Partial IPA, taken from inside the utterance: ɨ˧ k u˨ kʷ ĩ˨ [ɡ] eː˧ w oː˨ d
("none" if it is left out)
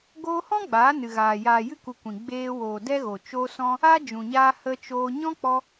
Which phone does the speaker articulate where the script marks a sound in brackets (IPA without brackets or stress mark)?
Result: ɡ͡b